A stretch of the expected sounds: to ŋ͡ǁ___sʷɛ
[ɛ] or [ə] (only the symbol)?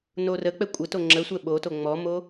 ə